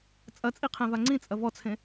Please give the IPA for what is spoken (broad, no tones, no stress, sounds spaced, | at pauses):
t͡sʼ ɐ t͡sʼ i qʰ ẽ v a ŋ͡ǀ ĩ t͡sʼ ɐ v ɔ t͡sʰ ẽ